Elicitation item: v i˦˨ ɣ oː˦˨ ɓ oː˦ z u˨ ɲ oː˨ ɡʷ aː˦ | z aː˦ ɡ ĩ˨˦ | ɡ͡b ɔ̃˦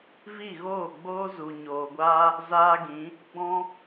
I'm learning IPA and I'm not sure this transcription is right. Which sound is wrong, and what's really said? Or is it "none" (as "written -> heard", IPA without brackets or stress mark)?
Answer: ɓ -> ɡ͡b